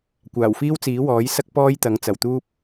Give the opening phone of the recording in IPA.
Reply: kʷ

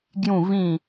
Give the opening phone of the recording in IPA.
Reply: ɡ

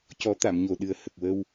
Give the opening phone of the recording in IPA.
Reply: c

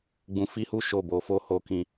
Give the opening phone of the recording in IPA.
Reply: ɡ͡b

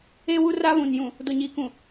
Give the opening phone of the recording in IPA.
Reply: e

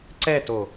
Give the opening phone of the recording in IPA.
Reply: ǀ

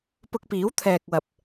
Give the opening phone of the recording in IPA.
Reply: p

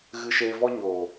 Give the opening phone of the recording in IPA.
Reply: ɣ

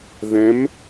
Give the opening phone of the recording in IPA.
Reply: ð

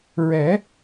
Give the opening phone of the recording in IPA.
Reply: ɹ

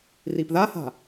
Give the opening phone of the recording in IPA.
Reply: r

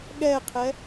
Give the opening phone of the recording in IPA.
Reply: ɠ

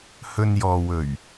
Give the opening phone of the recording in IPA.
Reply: h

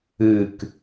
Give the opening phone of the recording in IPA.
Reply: ɨ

